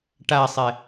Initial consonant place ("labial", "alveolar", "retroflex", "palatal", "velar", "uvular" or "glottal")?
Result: retroflex